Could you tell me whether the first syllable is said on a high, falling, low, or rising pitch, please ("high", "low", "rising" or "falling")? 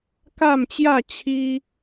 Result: falling